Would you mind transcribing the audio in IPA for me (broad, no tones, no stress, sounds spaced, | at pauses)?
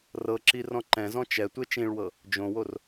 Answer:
r ɤ ǁ i r ɔ̃ ǃ ɛ̃ z ɔ̃ t͡ʃ ɛ tʷ e t͡ʃ ĩ ɭ w ɤ | d͡ʒ õ w o r